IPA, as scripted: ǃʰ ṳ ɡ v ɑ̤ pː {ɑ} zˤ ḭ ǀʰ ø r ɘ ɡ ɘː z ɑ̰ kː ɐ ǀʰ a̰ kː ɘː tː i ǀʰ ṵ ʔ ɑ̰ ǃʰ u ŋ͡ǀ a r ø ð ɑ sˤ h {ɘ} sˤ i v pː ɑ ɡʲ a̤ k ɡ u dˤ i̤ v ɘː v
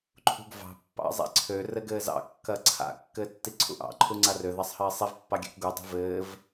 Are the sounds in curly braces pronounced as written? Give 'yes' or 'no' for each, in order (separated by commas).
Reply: no, no